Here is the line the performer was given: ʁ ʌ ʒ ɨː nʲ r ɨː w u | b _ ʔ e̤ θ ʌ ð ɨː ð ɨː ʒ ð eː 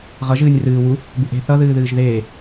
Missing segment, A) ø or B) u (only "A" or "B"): B